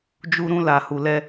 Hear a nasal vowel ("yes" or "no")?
yes